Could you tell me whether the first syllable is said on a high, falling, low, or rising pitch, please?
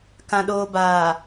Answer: low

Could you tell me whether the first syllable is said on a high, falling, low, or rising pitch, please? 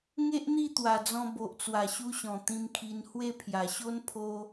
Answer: high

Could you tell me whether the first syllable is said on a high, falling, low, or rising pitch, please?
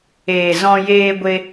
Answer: low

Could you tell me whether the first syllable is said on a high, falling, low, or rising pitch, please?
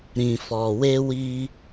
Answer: low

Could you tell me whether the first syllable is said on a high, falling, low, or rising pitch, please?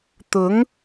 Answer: rising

